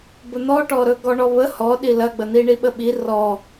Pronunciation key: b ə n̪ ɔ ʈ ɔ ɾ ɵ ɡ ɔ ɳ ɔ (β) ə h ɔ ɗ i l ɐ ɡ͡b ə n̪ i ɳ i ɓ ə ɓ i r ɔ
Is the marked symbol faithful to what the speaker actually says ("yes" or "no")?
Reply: yes